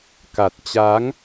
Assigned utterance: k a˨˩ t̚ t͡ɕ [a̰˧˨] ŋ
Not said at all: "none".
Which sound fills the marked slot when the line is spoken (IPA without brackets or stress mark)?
a˨˦